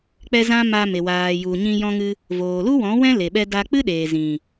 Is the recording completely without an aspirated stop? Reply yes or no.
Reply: yes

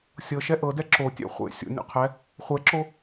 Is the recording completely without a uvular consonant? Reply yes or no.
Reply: no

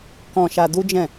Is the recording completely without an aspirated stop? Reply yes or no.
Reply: yes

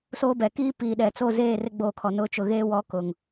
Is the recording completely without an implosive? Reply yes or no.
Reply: no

